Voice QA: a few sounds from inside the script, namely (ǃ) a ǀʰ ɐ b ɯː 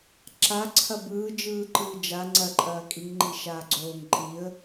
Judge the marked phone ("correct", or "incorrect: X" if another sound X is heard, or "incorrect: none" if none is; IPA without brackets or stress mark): incorrect: ǁ